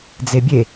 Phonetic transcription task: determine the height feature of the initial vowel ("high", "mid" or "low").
mid